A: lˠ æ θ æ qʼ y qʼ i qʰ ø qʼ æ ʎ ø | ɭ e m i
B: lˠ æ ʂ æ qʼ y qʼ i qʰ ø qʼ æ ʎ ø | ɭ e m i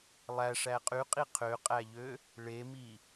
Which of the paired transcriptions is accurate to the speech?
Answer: B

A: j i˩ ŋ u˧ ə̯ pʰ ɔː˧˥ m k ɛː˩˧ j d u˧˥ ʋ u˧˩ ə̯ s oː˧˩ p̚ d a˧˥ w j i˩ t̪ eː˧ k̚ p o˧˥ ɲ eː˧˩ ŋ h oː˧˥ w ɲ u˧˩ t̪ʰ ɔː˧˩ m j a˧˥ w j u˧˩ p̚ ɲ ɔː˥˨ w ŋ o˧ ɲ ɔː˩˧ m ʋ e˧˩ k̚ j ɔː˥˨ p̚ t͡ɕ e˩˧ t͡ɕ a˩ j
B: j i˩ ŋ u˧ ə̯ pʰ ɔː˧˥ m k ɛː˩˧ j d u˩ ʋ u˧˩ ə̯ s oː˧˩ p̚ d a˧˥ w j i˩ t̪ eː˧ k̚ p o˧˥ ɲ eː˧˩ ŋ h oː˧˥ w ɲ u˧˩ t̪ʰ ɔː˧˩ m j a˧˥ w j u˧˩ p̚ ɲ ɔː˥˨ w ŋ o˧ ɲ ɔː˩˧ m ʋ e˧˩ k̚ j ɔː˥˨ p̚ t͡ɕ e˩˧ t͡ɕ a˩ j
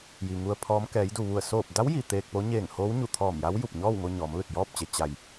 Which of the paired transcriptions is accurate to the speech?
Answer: B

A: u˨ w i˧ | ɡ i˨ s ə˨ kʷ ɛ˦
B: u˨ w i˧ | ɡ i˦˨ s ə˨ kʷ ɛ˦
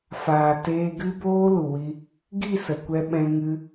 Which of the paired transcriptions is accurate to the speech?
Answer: B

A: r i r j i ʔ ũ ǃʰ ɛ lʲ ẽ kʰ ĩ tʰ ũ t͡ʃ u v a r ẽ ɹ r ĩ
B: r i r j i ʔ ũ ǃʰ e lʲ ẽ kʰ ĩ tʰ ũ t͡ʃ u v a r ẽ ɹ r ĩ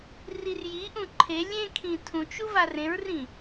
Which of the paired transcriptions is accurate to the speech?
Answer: B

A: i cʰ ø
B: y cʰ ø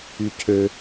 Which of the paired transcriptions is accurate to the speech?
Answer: B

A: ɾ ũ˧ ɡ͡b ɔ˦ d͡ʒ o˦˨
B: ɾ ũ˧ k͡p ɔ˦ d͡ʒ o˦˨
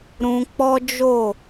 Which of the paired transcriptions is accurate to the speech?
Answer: B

